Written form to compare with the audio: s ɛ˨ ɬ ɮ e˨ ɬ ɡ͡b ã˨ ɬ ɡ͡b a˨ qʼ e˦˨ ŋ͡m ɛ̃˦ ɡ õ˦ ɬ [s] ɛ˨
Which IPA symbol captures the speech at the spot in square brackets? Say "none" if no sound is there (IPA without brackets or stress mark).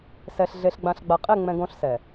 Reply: s